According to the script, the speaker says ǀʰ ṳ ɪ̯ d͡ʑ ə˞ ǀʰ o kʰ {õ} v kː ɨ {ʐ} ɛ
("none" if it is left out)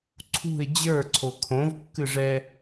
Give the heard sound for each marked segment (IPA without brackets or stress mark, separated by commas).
õ, ʐ